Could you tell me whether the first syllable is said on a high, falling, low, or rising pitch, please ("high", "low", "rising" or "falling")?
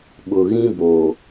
low